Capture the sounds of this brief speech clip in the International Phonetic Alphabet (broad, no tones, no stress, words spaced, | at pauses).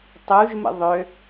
tˤuʒmə̰ ðˤø